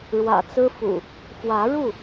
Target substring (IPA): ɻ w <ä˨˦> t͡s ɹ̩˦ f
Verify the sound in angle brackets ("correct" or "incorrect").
incorrect